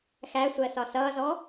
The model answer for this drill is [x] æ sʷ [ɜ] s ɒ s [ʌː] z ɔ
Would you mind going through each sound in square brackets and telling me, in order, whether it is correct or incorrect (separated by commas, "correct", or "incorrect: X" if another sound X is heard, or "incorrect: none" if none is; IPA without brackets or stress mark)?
correct, correct, correct